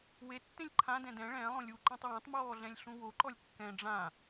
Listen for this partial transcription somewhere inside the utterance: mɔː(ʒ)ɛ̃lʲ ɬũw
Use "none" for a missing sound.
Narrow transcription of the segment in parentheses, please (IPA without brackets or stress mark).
ɮ